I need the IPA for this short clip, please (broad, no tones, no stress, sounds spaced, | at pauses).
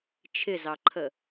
t͡ʃʰ ɪ z ɑ ǃʰ ə